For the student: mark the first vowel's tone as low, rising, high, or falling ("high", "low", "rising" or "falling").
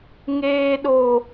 high